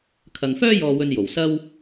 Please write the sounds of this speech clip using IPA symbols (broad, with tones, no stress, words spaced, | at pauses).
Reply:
kʰɐ˨ŋfœː˥ jɔː˧wɵ˧njo˨˩wsɐ˥w